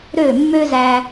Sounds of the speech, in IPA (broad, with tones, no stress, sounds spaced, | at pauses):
ɾ ø˦˨ mː ø˦ z æ˧